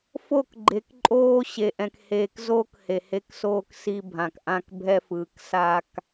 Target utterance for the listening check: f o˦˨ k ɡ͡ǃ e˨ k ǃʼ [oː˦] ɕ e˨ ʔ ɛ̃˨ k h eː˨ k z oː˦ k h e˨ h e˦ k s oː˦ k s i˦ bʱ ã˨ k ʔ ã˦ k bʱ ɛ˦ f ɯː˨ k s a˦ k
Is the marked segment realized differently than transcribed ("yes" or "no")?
no